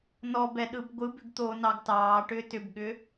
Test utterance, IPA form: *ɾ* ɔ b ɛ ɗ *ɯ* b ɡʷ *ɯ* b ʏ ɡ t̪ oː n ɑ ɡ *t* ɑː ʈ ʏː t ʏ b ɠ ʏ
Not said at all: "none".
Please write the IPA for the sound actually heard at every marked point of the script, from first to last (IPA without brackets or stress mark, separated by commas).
n, ɯ, ɯ, t